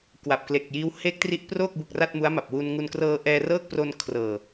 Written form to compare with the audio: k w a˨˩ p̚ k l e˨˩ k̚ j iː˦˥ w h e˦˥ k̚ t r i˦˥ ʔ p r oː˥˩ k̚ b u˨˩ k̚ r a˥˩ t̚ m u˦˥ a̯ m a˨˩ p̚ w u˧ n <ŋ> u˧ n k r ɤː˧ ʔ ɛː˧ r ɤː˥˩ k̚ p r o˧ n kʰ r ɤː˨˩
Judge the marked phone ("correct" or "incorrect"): correct